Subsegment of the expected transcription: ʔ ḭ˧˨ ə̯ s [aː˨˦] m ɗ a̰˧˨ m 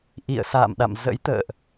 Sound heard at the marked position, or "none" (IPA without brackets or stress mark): a̰ː˧˨